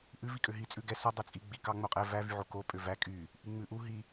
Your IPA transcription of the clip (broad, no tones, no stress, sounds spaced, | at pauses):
ʔ ʉ v i kʼ ø ɦ i t͡sʼ ʉ ɡ ɛ s ɔ dˤ ɛ t͡sʼ i ɡ͡b i k ɑ ŋ͡m o qʼ ɛ v æ v y ʕ o k o pʼ ø v æ kʼ y | ʔ i ŋ͡m ʉ ʔ u ɦ i